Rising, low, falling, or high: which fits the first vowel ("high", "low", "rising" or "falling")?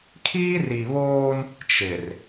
high